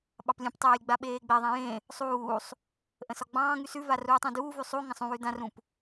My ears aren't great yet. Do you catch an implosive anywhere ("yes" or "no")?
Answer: yes